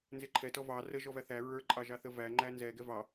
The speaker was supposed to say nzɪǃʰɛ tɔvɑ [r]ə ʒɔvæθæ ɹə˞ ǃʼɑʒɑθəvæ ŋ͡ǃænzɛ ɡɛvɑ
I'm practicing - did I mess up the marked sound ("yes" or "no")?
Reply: no